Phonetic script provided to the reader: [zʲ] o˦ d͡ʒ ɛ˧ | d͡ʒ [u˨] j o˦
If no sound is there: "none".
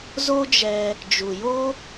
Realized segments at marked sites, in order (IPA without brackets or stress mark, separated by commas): z, u˨